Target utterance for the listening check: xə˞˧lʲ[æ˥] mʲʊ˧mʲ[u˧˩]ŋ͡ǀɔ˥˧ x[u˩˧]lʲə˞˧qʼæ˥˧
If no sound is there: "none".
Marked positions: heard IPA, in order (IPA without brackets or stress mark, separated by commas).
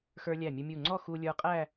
æ˧˩, u˧˩, u˧